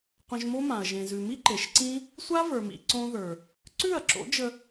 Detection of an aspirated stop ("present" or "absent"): absent